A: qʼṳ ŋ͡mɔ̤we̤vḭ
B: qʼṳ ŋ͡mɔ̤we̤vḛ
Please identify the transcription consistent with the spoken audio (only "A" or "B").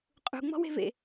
B